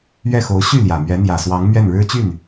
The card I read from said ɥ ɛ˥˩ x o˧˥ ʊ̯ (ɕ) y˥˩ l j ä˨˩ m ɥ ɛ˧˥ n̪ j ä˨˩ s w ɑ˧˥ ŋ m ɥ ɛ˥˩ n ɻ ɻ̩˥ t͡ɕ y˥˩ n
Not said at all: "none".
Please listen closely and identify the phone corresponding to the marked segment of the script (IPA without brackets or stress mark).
ɕ